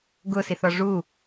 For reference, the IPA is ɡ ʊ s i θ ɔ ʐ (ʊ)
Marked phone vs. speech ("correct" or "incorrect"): incorrect